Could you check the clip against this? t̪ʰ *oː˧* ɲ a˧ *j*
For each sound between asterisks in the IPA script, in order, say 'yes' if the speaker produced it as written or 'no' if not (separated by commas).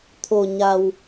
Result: no, no